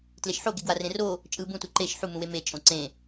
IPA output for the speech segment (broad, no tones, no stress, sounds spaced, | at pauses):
t l e ʃ ħ o ɡ e ɡ w a r ẽ r o | t͡ʃʼ ɯ b ũ t u ǃ e ʃ ħ u m ũ w e m e t͡ʃʼ õ ǀ ẽ